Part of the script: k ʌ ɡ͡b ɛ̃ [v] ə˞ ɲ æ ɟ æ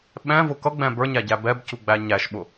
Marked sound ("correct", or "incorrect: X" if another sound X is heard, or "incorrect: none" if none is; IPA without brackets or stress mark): incorrect: b